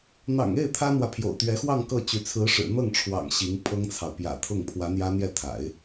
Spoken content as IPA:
n̪ ɑ̰˨˩ ŋ e˥˩ ɪ̯ t̪ʰ ä˥ n̪ w ä˨ pʰ j o̰˨˩ ʊ̯ t̪ ɥ ɛ˧˥ x w ɑ˥˧ ŋ k ɤ˥˩ t͡ɕ y˧˥ t͡sʰ ɹ̩˧˥ ʂ ɻ̩˨˩ n̪ ɤ˥˩ ŋ ʈ͡ʂʰ w ɑ̰˨˩ ŋ ɕ i˧˥ ŋ pʰ ɤ˥ ŋ t͡sʰ ɑ˨ ʊ̯ p j ä̰˨˩ t̪ʰ ʊ˥˩ ŋ pʰ w ä˧˥ n̪ j ä˥ n̪ j ɛ˥˩ t̪ʰ a̰˨˩˦ ɪ̯

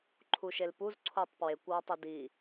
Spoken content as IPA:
ǃʰ u ʃ e l p u z ǀʰ o tˤ p w e kʷ w ɒ tˤ e d i

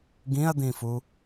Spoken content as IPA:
ɡ ĩ ɐ̯ d̪ ĩ f u

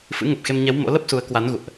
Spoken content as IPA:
f ɨ̰˧˥ ŋ ə˨˩ p̚ x e˧ m ɲ ɛ˨˦ w m o̰˧˥ l ə˦˥ p̚ s u˨˦ ə̯ k w a˨˦ n ɣ ṵ˧˨ ə̯ ʔ

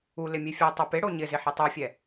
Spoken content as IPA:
u l ɪ mʲ e fʲ ɛ tˤ e p ɪ ɽ o ɲ ɪ z ɪ ħ e tˤ u fʲ ɛ

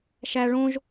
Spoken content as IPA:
ʃ æ ɭ õ ʒ

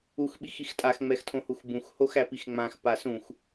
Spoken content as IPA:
u x ɓ i x i x tʼ a x ŋ͡m ɛ x tʰ õ h u x b ũ x h o x æ p i x ŋ͡m ã x p a s ũ x

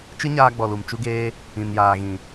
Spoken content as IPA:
t͡ʃ ɨ˦ ɲ aː˧ ɡ͡b ɔ˨ l u˨ m t͡ʃ u˦ ɡ eː˦ | ĩ˨ n j aː˨ ɣ ĩ˨

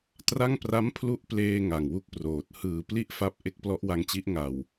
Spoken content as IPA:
t r a˥˩ ŋ p r a˦˥ m pʰ l u˦˥ ʔ p l eː˧ ŋ a˨˩ ŋ w u˥˩ k̚ p r oː˨˩ t̚ h ɯː˨˩ p l i˥˩ ʔ f a˦˥ p̚ ʔ e˦˥ k̚ p l ɔ˦˥ ʔ w a˧ ŋ t͡ɕ i˦˥ ʔ ŋ a˨˩ w

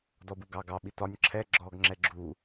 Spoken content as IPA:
d ɔ b u ɡ ɑ ɡ ɑ ɓ i t ɒ nʲ ǁʰ ɛ ɡ͡ǁ ɔ ɡ ŋ͡ǁ ɛ ɡ͡ǁ u

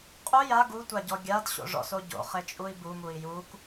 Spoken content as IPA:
qʼ u j a ɡ u tʷ a ɟ ɔ ɡʲ a d ɕ o̰ ʐ ɔ̰ s o ɟ o̰ χ e t͡ʃʼ u i̯ b u m u i̯ j u k

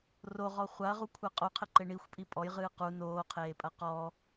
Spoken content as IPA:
r o ʁ ɔ χʷ a ɐ̯ ʁ u kʷʰ ɛ qʼ o qʰ ɘ ǃ e ɳ i xʷ pʼ i pʼ ɔ j ʁ ɨː q u n oː qʰ eː pʼ ɐ q ɔ

